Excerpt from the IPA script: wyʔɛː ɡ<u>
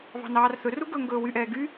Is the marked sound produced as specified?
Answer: no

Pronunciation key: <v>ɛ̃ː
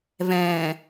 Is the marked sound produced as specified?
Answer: yes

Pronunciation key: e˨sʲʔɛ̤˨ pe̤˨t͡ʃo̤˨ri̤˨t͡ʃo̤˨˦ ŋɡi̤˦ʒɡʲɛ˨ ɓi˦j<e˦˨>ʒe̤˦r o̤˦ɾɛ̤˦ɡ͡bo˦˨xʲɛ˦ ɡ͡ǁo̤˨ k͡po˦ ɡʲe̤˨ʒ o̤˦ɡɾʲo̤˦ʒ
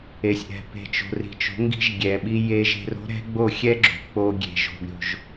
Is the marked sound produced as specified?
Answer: no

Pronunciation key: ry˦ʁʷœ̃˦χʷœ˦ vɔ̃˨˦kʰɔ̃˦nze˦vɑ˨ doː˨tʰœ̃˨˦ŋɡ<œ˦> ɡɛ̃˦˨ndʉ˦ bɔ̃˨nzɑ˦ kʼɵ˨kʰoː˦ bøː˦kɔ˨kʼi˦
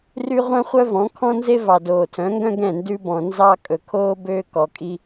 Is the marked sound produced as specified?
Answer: no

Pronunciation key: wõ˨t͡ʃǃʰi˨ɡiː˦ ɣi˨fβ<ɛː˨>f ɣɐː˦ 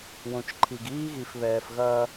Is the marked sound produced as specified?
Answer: yes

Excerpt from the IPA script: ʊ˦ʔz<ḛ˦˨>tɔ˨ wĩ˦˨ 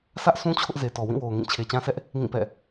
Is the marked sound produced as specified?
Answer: no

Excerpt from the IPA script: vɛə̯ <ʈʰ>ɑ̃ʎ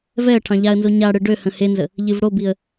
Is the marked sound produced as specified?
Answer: yes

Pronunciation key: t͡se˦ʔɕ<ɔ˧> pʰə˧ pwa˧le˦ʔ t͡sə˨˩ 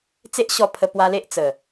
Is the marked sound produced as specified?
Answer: yes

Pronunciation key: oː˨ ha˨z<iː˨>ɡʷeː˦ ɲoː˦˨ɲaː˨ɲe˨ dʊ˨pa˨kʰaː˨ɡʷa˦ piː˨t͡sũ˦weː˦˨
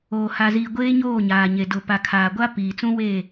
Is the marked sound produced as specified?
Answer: yes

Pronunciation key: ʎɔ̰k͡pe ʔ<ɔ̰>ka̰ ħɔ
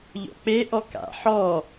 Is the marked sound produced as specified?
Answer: no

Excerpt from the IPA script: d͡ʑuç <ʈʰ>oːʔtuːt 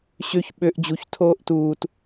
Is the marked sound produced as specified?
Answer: no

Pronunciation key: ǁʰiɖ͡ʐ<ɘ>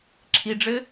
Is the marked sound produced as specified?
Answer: yes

